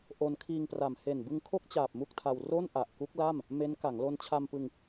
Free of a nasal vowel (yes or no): yes